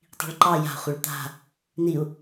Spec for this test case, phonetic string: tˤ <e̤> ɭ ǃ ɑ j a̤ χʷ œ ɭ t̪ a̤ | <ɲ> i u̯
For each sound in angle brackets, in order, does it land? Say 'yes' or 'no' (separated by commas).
no, no